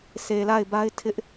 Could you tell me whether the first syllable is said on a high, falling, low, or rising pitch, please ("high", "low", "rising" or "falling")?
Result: low